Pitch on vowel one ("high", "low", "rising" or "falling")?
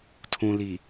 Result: low